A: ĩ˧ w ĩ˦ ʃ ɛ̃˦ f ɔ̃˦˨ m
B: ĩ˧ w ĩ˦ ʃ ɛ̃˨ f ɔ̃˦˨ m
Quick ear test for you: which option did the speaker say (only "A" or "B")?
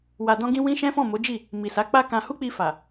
A